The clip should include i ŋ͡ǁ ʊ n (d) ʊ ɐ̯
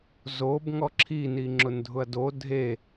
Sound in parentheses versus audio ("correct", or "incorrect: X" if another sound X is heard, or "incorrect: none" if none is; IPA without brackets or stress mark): incorrect: dʱ